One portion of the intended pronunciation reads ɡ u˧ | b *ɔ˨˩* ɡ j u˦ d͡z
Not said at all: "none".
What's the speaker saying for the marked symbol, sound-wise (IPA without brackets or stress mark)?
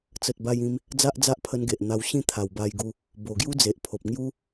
o˨˩